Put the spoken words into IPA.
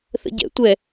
θ ə̰ ɟ ɛ̰ tʷ ɛ

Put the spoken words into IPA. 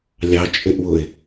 lʲ ɑ t͡ʃʼ ɪ ʔ w ʊ ɪ̯

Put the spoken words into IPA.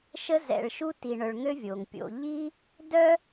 ʃ ə˥ z ɛ̰˨ ɭ ʃ u˥ t i˨ ɳ œ˨ ɭ ŋ ø˦ vʲ oː˩ ŋ pʲ o̰˨ ʎ i˥ | d œ˥

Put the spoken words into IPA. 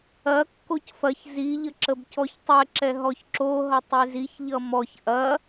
ɐ kː o c f ɐ ç z i ʎ ə ǁ ə b c ɔ ç tˤ ɛ ǁ ɛ ɦ ɔ ç ǁ o ɦ ʌ tˤ e z i ç ʎ ʌ m ɔ ç ʔ ɐ

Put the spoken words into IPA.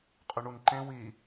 qʼ ʏ ɳ u n ǃ ẽ w i

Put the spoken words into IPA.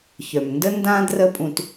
ç œ˩ m n d ə˥ n d ã˥ d r ə˥ pʼ ũ˧ t

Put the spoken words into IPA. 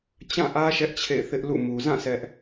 t͡ɕ ã˦˨ ʔ ä˦ ʃ ɛ˦ ʔ t͡ɕʰ ḛ˦˨ ɪ̯ θ ɪ˦ ʔ l ṵ˦˨ m u˨ z ã˦˨ s ɛ˦ ʔ

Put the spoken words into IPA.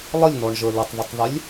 lˠ ə lʲ n ɔ ɳ ʒ ə˞ l ɪ tˤ ð ʊ tˤ ð ɪ lʲ

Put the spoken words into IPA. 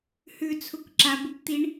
h ʉ t͡sʰ u k ǁ a b u p t̪ i ɳ

